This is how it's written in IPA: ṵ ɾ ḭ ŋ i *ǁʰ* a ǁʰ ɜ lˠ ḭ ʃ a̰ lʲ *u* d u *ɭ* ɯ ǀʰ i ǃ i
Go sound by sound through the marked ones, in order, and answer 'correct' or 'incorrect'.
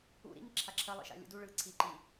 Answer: correct, incorrect: ṵ, correct

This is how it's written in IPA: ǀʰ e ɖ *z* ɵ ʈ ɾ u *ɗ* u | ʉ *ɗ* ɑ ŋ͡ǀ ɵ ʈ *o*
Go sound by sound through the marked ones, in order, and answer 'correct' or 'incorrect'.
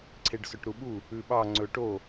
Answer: incorrect: s, incorrect: ɓ, incorrect: ɓ, correct

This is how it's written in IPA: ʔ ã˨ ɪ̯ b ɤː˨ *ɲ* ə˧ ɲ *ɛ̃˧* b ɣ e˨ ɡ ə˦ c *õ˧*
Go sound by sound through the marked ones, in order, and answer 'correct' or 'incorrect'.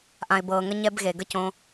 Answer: incorrect: ŋ, incorrect: ɛ˧, correct

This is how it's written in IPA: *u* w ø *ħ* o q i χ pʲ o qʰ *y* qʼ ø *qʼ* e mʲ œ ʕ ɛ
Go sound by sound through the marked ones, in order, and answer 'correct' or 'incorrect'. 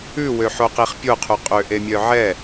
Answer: incorrect: ʉ, correct, correct, incorrect: ʔ

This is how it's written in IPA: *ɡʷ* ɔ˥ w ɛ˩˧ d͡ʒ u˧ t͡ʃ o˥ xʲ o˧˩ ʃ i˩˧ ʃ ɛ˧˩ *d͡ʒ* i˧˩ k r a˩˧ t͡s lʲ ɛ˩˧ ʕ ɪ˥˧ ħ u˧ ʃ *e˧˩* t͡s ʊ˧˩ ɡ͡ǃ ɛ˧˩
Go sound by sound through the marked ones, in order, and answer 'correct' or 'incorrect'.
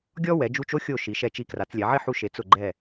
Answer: incorrect: ɡʲ, incorrect: t͡ʃ, incorrect: e˩˧

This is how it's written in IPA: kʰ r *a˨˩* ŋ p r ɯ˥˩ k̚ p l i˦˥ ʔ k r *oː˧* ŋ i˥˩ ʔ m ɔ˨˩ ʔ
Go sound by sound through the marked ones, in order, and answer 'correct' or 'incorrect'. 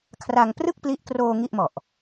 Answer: incorrect: a˧, correct

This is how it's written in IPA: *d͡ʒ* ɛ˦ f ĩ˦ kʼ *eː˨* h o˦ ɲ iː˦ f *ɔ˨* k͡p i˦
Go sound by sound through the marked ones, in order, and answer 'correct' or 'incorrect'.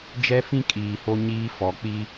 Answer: correct, incorrect: iː˨, correct

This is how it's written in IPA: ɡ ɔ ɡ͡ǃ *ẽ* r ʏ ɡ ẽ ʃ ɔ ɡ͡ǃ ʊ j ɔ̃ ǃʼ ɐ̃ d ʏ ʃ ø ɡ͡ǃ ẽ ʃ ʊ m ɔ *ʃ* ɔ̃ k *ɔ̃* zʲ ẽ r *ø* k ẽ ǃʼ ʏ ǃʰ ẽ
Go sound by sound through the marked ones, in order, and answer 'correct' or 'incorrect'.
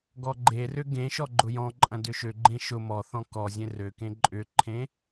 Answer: incorrect: e, incorrect: θ, incorrect: ɔ, correct

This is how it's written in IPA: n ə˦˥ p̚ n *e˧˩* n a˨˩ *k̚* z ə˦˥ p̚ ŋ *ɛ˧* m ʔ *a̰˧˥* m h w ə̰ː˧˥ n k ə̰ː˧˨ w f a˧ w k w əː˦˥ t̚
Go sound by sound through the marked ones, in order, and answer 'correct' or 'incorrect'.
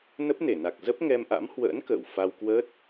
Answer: correct, correct, correct, correct

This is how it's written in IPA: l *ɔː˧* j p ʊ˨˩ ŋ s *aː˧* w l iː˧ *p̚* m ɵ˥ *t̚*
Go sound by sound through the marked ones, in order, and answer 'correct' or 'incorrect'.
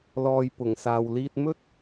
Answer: correct, incorrect: aː˨, incorrect: t̚, correct

